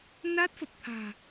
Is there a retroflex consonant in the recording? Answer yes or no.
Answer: no